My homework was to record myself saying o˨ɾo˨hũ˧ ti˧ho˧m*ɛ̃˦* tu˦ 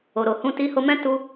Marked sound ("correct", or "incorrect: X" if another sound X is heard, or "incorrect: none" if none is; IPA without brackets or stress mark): correct